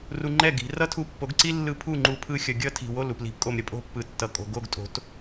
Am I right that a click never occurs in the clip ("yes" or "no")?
no